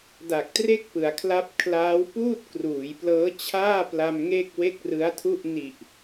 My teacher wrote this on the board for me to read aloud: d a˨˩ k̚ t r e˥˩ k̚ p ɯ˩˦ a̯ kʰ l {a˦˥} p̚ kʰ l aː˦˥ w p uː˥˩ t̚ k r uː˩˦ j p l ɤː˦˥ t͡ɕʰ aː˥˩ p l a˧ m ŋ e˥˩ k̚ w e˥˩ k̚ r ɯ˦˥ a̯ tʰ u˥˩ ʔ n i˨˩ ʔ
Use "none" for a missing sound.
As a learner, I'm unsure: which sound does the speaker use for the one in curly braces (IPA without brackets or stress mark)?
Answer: a˦˥